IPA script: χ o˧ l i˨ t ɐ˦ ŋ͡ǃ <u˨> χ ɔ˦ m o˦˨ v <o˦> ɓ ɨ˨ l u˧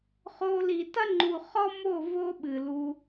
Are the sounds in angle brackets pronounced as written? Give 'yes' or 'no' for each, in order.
yes, yes

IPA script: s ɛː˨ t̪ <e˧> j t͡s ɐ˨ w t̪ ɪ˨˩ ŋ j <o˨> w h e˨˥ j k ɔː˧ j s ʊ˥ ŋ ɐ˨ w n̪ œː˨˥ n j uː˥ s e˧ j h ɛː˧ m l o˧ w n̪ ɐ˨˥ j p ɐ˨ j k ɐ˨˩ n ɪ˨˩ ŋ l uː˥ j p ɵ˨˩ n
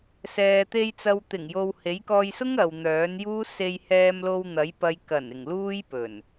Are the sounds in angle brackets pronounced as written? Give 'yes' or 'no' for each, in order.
yes, yes

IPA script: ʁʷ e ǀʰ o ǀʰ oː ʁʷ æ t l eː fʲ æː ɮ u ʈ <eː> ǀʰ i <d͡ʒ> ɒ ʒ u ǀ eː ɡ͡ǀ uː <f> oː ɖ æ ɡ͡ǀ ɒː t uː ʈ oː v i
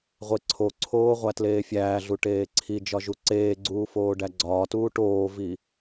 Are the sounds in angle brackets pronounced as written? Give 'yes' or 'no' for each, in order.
yes, yes, yes

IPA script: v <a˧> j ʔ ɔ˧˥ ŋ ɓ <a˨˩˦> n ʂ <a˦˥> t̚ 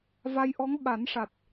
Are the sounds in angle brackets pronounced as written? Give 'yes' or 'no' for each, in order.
yes, yes, no

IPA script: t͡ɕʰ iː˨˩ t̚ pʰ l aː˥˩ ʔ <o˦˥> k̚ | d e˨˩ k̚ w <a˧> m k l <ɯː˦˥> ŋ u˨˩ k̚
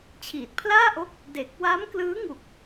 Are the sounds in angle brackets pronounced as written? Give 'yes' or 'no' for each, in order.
yes, no, yes

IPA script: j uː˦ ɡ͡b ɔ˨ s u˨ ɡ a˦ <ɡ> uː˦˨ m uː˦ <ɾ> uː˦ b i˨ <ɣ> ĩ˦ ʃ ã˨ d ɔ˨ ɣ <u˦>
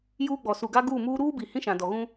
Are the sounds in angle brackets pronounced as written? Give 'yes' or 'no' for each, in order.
yes, yes, no, no

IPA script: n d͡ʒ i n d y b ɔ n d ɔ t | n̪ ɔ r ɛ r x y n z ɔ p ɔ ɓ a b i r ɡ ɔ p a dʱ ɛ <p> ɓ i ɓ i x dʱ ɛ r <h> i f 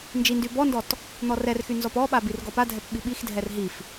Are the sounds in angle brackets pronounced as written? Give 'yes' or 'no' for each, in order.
yes, no

